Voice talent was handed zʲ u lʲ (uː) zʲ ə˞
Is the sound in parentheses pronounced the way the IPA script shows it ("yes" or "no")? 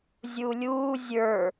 yes